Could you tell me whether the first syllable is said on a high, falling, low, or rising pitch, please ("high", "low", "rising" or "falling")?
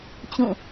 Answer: falling